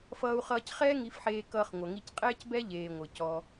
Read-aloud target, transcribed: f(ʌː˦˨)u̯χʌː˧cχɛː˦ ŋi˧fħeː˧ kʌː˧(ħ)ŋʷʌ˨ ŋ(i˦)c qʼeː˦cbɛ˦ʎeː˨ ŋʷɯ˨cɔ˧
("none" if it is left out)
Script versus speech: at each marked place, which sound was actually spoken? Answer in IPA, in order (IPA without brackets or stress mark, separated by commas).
ʌː˧, χ, i˧